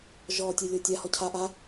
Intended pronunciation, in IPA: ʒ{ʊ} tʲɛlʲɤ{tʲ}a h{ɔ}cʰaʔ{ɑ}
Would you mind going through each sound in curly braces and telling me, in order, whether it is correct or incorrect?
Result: incorrect, correct, correct, incorrect

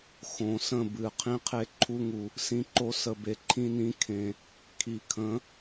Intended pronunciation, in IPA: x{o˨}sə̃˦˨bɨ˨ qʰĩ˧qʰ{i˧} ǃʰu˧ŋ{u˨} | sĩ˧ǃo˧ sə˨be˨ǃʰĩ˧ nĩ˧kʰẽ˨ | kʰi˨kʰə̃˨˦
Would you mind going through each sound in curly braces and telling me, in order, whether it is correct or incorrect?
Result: incorrect, incorrect, correct

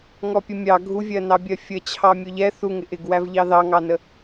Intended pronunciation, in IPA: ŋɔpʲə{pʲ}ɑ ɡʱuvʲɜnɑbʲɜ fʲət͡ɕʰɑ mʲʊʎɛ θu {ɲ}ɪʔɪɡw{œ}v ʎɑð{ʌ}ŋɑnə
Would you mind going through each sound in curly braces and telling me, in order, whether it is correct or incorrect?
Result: incorrect, incorrect, incorrect, incorrect

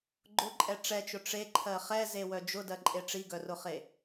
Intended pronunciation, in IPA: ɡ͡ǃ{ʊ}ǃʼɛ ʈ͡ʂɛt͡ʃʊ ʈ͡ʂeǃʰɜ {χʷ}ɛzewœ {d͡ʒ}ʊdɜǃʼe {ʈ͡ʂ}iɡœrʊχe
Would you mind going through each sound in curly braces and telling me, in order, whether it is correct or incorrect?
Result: correct, incorrect, correct, correct

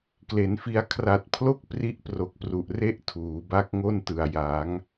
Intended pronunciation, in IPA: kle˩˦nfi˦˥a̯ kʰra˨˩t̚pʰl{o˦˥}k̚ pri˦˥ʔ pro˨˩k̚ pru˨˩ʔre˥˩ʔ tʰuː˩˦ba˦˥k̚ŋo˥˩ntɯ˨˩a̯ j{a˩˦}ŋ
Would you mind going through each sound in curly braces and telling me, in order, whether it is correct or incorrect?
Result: incorrect, correct

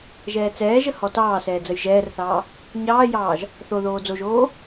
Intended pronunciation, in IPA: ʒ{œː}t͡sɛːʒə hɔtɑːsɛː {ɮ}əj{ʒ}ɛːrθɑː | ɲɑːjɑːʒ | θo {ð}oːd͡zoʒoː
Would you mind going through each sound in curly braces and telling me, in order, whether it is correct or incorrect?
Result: incorrect, incorrect, correct, correct

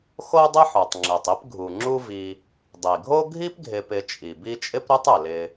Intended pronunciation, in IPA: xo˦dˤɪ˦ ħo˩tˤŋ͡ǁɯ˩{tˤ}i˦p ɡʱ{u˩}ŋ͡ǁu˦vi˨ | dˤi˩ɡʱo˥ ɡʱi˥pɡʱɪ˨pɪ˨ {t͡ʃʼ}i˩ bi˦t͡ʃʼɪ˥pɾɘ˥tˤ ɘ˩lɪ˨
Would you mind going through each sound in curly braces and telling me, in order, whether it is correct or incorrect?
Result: correct, correct, correct

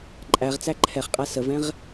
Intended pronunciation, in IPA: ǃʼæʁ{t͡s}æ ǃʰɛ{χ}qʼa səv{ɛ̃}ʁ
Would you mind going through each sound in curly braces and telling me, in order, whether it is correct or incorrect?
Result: correct, correct, correct

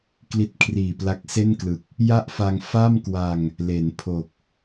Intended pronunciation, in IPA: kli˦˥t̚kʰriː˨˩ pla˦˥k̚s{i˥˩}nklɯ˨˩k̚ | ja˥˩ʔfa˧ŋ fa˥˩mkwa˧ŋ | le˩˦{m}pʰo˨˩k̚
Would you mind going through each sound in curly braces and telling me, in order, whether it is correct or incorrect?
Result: incorrect, incorrect

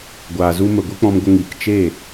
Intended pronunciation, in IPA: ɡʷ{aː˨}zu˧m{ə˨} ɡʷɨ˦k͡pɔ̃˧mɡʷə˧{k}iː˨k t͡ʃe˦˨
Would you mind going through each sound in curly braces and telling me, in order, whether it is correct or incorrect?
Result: correct, correct, incorrect

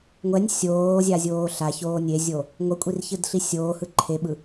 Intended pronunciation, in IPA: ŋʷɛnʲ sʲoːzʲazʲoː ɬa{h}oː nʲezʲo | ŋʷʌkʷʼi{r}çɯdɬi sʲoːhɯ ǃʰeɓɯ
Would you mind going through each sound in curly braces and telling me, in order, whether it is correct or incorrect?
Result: incorrect, correct

